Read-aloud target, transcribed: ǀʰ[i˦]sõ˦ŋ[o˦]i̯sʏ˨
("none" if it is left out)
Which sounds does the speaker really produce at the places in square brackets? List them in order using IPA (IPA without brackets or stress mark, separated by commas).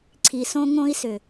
i˨, õ˦